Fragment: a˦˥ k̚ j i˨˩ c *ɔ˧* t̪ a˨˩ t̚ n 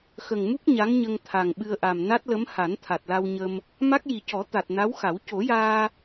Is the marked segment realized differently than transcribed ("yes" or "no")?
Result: yes